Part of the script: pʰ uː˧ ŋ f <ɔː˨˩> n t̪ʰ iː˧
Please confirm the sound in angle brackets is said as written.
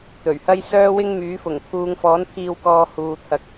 no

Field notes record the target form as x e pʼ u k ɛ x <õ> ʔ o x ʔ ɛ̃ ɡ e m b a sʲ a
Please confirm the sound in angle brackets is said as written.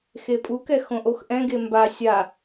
yes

